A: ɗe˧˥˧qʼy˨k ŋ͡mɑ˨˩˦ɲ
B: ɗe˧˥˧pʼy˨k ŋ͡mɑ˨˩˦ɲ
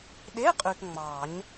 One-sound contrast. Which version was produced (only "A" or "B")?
A